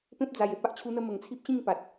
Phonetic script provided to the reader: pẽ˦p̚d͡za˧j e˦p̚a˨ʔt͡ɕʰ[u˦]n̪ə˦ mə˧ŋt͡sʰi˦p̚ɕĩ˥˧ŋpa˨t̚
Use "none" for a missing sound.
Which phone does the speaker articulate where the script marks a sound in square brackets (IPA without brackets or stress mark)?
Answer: u˦